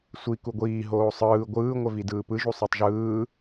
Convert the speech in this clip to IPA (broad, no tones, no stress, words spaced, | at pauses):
sʷi kuɡʷiː ɦoːsˤɯː ɡʷɯː ŋʷɛvidɯːpɯ ʒusˤetˤʒɯː